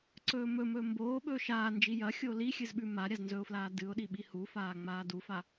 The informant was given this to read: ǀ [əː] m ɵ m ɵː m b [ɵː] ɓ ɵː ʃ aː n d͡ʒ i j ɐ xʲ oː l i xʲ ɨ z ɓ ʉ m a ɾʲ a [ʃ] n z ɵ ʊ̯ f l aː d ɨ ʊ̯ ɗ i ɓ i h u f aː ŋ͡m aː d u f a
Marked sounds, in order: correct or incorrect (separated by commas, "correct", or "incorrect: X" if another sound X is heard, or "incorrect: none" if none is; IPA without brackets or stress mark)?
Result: incorrect: ɵː, incorrect: oː, incorrect: z